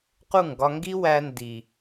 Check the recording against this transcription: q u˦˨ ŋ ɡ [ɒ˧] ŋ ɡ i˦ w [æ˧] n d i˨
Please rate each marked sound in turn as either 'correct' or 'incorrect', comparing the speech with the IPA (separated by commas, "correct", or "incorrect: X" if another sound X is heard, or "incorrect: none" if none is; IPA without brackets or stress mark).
correct, correct